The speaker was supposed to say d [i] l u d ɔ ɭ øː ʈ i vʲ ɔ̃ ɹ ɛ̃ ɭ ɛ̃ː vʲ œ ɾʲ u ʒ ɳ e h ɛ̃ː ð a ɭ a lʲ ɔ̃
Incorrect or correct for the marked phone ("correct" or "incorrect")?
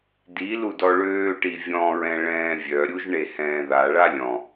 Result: correct